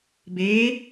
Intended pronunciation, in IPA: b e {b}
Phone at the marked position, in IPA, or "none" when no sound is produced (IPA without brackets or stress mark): none